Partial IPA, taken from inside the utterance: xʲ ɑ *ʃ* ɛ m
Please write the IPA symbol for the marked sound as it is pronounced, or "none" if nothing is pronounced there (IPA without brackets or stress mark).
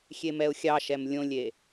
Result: ʃ